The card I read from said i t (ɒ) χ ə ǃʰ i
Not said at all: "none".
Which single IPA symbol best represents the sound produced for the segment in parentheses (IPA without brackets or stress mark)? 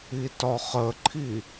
ɒ